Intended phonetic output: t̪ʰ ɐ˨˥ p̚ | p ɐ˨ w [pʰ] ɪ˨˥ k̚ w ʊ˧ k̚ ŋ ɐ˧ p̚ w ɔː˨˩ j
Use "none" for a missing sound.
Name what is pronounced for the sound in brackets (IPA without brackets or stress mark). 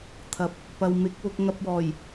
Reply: m